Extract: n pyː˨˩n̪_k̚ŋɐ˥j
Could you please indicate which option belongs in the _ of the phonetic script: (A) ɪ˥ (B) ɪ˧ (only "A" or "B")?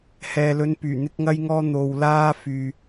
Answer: A